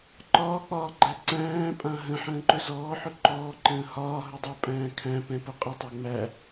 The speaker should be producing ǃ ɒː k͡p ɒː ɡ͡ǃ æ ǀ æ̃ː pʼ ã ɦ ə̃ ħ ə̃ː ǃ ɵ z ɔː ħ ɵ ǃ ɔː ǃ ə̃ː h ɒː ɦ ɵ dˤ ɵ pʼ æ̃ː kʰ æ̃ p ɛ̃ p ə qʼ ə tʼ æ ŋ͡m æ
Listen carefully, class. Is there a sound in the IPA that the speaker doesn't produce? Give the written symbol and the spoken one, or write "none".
tʼ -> tˤ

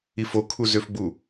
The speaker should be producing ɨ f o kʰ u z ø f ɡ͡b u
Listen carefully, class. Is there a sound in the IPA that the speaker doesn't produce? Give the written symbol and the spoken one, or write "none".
ɨ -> i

